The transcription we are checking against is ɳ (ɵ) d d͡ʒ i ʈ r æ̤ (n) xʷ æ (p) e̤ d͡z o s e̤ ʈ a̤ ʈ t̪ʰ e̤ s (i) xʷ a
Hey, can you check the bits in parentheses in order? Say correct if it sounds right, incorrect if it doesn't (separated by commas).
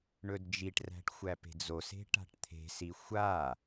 correct, incorrect, correct, correct